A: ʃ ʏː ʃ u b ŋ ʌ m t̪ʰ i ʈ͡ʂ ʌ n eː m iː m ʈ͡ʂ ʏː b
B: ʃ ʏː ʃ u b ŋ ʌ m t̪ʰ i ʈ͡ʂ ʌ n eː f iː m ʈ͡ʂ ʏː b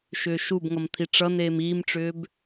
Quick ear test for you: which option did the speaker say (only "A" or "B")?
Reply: A